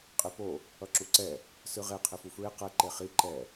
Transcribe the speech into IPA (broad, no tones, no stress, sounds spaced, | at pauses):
qʼ e p o | ʌ ǁ u ǀ ɛ | s ɯ ʁ e qʰ e f u f ɹ e q ɛ ǃ e χ i ǃ ɛ